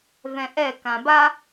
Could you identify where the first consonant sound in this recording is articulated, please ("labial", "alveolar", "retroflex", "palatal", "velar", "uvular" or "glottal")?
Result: labial